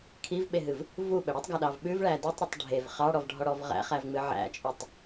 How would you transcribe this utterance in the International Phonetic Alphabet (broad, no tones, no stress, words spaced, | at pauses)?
kʰivɓeɦɨv | vuɓə ɽitˤɡaɗɑv ɓʉvɭæ dʉtˤɾutˤ ɖʱev χɑɽɔvɖʱɔɽɔv ʁæ̰χævŋ͡mɨ ʕæ̰t͡ʃʼʉtˤ